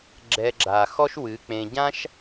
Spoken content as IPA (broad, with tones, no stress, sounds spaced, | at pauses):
ɡ͡ǁ ɛ˧ ɡ͡ǁ a˨ x ɔ˦ ʃ w ɨ˨˦ k͡p ẽ˧ ɟ ã˦ ʃ